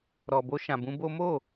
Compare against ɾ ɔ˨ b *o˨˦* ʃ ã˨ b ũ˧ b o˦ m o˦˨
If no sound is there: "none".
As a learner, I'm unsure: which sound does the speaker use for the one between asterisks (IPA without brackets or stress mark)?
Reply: o˧